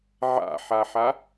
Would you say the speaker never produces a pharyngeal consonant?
no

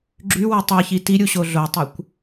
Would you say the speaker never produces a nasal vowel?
yes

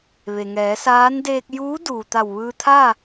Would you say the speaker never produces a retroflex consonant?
yes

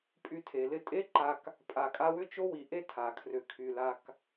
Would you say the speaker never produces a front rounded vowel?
no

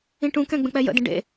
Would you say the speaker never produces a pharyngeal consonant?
yes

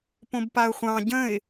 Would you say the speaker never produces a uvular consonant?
no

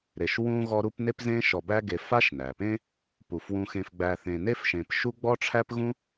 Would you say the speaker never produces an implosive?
yes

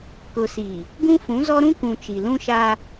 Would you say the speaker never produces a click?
yes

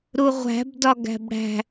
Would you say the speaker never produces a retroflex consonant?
no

